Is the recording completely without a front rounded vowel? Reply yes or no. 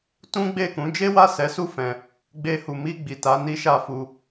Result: yes